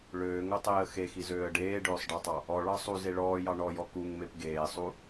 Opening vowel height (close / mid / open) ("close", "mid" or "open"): mid